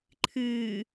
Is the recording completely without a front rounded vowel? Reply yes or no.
yes